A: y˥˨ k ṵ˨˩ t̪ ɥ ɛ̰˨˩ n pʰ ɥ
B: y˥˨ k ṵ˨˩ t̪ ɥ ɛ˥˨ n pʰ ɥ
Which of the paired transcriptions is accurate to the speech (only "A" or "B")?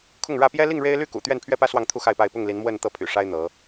B